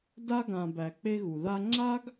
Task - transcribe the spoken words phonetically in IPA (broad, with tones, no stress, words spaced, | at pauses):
da˦ɡã˨ bæ˨k͡pe˦ɣu˩ ða˦ ŋ͡ǁa˥ɡ